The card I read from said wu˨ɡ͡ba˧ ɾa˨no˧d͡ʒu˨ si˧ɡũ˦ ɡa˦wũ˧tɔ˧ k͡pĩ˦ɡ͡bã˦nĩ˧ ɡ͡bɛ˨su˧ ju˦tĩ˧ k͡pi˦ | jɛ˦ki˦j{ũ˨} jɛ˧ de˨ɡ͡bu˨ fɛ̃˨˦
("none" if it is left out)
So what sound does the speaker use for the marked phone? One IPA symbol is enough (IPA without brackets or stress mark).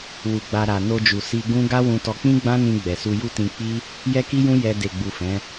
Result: ũ˦